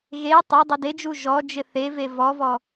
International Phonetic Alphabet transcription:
ɣe tˤe dˤeded͡ʒu ʒɔd͡ʒɪ θeve vɔvɔ

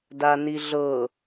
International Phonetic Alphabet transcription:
daniɮɤ

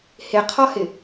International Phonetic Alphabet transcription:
hɪqʰɒhɪ

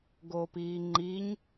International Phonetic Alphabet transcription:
ɡoːpiːŋ͡ǃiɲ

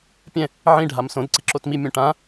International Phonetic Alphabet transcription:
pʲɛ̃ | ʕĩ ɖʱamsõd ǀiǁotmi mʲõʈã

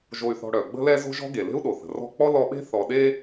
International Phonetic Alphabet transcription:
ʒo˨y̯θɔ̤˨ ɽœ˩ɡ͡bə̤˦lɛ˦ zo̤˥ʒɔ̤˥ɡe˩ le̤˥u̯ɗo˩θə̤˩ rɔ̤˦k͡pɔ˥ lɔ˦ɓe̤˥ θɔ˨ɗe˦

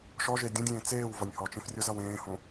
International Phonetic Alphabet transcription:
ʃɔʒe dʲõdʲẽː t͡seːwvʌnʲ hɔt͡ʃẽf rʲozʌwẽːhõ

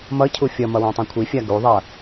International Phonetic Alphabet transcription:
mʌcʰu fʲʌmʌ wãtˤɛ̃kʷʰifʲa ɡuðˤʌ

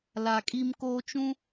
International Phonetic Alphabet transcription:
la˨kʼi˦mkoː˦ t͡ʃũ˦

